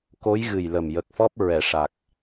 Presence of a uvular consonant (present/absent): absent